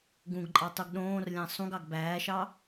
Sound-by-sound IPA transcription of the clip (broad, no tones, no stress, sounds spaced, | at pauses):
ɡ ũ ɡ ǃʼ ɑ tˤ u ɡ ɗ õː r lʲ æ̃ sˤ ũ ɡ ɑ ɡ b æː ʃ ɑ